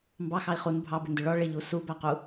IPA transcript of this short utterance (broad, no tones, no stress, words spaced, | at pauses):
mbɑxɑi̯ χun bʱɑbɪndʊ ɭɔ ɭɪʎu subæqu